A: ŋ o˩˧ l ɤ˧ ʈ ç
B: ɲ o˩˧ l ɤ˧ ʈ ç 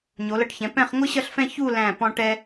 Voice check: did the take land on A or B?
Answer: B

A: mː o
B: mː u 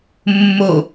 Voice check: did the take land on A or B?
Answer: A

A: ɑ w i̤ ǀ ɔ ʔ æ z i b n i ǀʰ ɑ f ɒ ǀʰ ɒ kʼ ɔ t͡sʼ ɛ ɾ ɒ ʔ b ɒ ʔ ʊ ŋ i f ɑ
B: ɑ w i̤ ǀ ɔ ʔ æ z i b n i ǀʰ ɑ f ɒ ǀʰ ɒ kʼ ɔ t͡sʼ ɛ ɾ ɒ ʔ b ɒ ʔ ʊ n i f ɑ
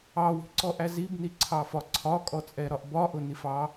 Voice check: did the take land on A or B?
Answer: B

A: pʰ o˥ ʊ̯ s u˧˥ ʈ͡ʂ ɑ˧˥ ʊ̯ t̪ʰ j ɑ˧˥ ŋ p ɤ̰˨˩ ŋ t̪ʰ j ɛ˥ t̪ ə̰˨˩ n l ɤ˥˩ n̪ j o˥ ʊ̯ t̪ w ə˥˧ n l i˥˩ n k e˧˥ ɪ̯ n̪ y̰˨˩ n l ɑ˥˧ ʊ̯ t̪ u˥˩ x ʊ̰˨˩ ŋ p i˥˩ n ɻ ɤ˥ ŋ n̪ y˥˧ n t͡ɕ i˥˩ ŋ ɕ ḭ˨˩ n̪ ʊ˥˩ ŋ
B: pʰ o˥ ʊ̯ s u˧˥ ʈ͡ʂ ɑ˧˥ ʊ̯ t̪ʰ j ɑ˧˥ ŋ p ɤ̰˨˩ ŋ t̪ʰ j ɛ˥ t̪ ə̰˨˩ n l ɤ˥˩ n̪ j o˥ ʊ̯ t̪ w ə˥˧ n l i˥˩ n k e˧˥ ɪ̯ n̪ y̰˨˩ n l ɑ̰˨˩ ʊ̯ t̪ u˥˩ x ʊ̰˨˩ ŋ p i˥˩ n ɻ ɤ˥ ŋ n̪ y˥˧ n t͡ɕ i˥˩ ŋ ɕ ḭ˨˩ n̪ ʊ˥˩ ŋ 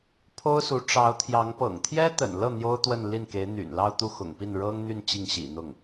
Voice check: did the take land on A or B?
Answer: A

